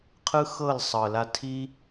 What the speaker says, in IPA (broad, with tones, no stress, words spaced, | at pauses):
qʰɯ˦xɤ˦˨lsˤɤ˨ la˧tʰi˦